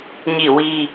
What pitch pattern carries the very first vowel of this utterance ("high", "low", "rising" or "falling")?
falling